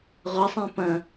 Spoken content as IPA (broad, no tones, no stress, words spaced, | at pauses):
ʁʷɐsˤẽ pɐ̃